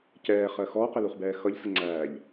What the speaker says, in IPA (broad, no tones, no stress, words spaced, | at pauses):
cɛːχɜ xɔːqɪluχbɛː xʌʎsəŋ͡ǀæːʎ